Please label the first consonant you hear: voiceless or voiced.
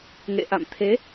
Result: voiced